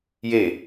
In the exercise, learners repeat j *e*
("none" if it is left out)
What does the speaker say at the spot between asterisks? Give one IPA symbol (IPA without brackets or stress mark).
e